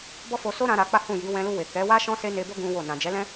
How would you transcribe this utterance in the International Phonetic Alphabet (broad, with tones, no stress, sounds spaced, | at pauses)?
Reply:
b ɔ˦ f o˧ s o˦ ɾ ã˧ ɾ a˧ k͡p a˦ h ũ˦˨ j i˨˦ w ɛ̃˧ l u˧ w e˨ k ɛ˨˦ w a˦ ʃ ɔ̃˦ s e˦ n e˧ b o˦ ɡ ũ˦ w o˦˨ n ã˨ d͡ʒ ɛ˨˦ l ɛ̃˦